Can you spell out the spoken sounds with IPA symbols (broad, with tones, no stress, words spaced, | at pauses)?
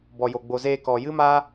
bɔ˨jo˨ ɡ͡bo˨zeː˧kɔ˨ jɨ˦maː˦